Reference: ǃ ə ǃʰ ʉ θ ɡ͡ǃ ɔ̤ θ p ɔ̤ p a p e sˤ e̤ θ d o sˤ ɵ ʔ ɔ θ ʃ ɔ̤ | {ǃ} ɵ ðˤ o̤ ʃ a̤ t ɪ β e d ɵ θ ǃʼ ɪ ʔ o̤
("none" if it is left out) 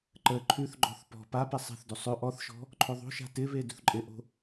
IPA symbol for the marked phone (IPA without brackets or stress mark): ǃʰ